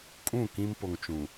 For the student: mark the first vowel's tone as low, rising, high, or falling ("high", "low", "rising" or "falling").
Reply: falling